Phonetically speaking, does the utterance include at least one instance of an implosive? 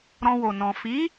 no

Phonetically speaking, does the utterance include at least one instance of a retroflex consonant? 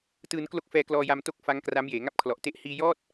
no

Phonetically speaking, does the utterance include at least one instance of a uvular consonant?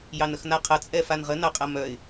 yes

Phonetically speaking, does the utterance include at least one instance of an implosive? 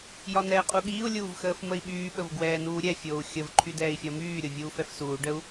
yes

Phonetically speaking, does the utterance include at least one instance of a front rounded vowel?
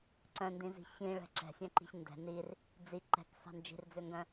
yes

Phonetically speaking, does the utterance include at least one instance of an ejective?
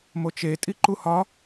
yes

